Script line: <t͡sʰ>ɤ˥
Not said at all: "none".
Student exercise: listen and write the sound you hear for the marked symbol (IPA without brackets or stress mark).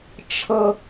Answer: t͡ʃʰ